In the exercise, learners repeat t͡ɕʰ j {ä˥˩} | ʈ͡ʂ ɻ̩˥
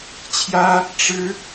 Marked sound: incorrect: ä˥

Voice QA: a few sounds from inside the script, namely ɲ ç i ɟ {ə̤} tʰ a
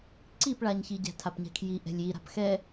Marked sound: incorrect: æ̤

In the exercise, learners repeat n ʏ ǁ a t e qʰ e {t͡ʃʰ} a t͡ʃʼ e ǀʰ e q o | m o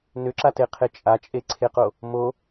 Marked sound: incorrect: t͡ʃʼ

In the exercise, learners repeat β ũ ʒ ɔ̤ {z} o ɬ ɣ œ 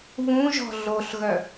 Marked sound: incorrect: ɮ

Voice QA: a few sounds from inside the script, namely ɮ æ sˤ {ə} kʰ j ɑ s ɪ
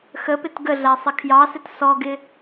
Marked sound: incorrect: ɪ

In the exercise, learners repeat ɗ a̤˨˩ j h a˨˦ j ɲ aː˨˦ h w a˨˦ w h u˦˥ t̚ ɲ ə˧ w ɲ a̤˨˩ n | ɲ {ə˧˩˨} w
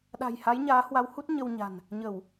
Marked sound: correct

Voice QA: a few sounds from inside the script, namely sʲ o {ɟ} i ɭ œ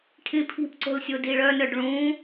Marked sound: incorrect: d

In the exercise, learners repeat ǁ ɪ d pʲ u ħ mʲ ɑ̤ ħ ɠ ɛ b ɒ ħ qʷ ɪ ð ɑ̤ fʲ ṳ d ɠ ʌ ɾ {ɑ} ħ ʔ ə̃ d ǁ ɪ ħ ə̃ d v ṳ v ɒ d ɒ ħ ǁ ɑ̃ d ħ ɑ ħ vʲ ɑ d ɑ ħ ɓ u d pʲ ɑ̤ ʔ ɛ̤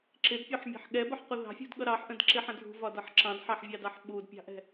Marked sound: correct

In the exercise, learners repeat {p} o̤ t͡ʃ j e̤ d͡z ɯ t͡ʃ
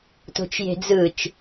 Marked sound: incorrect: t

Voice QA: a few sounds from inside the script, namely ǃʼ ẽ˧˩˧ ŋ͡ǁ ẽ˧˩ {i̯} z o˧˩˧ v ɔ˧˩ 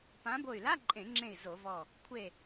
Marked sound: correct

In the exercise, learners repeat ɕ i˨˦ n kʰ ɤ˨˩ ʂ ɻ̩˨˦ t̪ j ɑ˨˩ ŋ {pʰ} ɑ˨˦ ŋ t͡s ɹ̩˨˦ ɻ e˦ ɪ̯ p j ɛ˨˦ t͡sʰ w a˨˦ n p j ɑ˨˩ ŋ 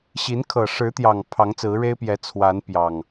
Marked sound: correct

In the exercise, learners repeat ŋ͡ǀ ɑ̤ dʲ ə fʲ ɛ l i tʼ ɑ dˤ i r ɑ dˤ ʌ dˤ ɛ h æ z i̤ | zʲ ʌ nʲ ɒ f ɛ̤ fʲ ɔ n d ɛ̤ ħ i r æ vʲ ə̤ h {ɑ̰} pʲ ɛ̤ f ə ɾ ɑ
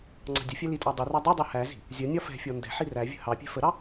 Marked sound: incorrect: ɑ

